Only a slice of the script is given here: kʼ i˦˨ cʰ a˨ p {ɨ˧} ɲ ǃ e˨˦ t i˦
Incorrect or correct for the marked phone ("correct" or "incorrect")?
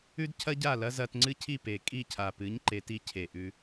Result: incorrect